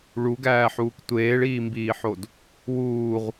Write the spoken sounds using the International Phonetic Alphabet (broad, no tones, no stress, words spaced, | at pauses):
ɭuɡæːħuːk tʷeːɭiːmbiːħod | wuːʁ